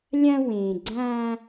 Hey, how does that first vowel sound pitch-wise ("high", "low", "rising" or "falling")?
high